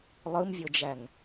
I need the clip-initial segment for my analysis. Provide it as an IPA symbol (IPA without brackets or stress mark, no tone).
lˠ